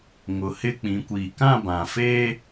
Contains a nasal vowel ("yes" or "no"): yes